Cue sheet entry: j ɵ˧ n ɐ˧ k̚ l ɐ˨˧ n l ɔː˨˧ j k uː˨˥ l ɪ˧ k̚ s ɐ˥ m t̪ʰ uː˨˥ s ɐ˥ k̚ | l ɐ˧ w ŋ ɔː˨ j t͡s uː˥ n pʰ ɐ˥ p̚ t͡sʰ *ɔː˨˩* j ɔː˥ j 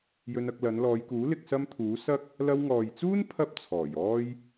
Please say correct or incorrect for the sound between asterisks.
correct